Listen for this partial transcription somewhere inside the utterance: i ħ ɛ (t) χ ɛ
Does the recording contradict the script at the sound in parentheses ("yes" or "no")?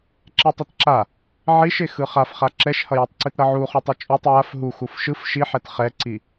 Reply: no